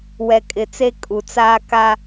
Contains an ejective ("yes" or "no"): yes